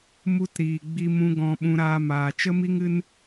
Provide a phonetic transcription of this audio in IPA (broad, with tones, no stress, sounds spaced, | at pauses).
m u˧ t ɾ iː˨ ɡ͡b i˧ m ũ˧ ɡ ɔ̃˧ ɓ ũ˧ ɾ aː˧ m aː˨ t͡ʃ ə˦ m i˦ ŋ ɨ˦ n